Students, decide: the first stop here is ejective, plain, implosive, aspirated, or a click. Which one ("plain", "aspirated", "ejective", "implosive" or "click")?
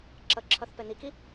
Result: click